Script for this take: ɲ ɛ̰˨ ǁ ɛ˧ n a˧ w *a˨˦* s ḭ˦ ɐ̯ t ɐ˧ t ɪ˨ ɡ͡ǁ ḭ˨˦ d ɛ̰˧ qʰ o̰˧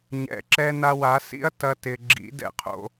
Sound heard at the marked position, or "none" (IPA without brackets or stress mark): a˨˦